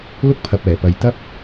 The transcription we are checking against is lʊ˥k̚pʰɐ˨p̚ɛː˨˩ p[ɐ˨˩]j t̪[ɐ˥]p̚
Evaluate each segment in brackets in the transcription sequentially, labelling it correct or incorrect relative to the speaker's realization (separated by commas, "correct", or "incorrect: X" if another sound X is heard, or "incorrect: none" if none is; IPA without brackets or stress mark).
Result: incorrect: ɐ˨, correct